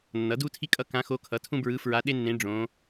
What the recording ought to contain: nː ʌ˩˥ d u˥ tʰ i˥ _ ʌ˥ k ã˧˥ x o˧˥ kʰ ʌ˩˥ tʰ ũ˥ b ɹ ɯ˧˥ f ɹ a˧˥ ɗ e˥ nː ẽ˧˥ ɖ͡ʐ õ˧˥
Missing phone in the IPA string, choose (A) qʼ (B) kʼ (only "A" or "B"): B